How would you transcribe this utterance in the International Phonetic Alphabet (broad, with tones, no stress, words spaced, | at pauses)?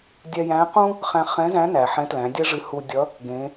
dʲɛ˧jæ̃˧˥ qũ˥ | χæ̃˧χɛ̃˧˥zæ̃˧˥næ˩ ħɛ̃˧˥tlæ̃˩˧dʲɛ˥ʐɨ˧ hu˧dʲʌ˧˥ | ɡẽ˩˧